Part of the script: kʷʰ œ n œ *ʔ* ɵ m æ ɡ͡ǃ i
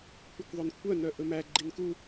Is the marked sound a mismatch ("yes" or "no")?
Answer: no